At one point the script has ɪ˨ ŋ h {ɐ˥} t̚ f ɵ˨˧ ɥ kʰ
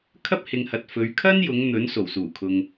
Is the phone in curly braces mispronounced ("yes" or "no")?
yes